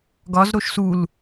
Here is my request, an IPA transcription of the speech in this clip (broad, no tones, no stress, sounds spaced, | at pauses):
ɡ ɒ z ɾ o ʃ s u l